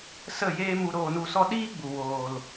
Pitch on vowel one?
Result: falling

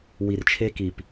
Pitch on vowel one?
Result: low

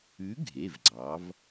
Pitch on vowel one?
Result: rising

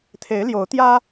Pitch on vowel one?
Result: rising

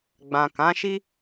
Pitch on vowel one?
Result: low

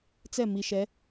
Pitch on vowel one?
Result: falling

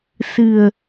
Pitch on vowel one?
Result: low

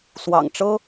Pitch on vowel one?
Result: low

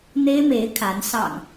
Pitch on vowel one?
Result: high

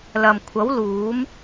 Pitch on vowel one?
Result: low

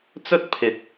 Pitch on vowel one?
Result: high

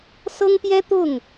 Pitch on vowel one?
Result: high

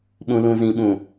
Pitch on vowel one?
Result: low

